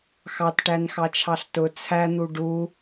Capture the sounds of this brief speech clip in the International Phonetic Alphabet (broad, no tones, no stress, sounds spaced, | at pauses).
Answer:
x ɑ t ʈ æ n x ɑ t͡ʃʰ ɑ ɬ t ʊ t͡sʰ æ n̪ u ɖ u